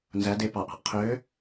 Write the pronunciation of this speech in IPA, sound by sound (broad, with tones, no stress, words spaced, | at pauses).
nzæ˧˥de˧˥ pɑ˨˩ʔɑ̤˧˩˧ʔ qʰøː˧˥